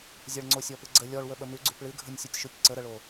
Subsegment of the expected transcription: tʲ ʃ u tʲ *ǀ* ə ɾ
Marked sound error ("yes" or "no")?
no